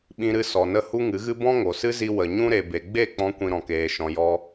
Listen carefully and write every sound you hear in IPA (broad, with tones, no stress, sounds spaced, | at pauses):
ɓ ĩ˧ ɾ ɨ˧ s ɔ˨ n ə˧ h u˦ ŋ ɨ˨˦ ɣ ɨ˦ b ɔ̃˦ ŋ o˨ s ɨ˦ z i˧ w ə˨ ɲ ũ˦ ɾ e˨ b e˨ ɡ͡b e˦˨ k͡p ɔ̃˧ kʷ ĩ˧ ɾ ɔ̃˨ k eː˨ ʃ ɔ̃˨ j ɔ˧